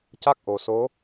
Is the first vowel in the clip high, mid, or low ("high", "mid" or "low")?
low